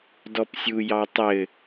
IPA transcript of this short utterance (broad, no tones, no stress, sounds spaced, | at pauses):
d ɔ p sʲ u j ɑ tˤ ɘ